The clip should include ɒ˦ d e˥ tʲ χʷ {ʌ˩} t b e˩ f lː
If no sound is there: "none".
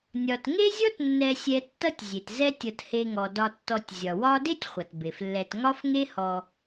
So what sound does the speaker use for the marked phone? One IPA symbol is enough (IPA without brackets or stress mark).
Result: ʌ˩